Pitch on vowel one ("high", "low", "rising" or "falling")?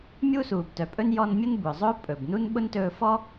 high